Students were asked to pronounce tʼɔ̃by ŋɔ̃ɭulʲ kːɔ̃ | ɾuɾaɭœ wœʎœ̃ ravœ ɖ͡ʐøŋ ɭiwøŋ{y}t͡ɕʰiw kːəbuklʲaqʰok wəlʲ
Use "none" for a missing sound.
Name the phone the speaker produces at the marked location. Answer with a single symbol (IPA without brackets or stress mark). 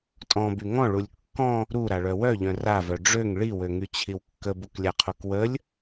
y